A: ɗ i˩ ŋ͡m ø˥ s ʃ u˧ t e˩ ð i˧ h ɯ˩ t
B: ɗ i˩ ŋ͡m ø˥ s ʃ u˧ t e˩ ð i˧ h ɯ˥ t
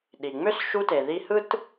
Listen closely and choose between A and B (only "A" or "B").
B